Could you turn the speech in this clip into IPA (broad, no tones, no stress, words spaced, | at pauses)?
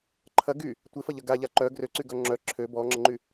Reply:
ǃʰɐ ɡy | tʷɪfɐʎɐ ɡa ʎaǃœ ɡrøǀyɡœ ŋ͡ǁœ ǁʰø bɔŋ͡ǁəŋ͡ǃy